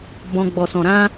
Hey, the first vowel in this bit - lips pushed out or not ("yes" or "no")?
yes